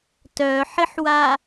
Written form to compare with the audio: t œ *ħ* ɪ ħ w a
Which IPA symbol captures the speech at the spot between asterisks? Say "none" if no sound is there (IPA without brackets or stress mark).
ħ